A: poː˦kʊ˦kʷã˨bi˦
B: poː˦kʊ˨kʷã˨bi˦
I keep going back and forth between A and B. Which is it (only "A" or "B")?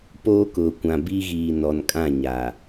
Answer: B